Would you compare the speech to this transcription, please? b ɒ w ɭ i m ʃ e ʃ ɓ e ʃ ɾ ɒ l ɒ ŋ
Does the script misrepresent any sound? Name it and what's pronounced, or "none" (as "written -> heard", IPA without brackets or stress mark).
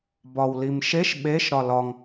ɭ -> l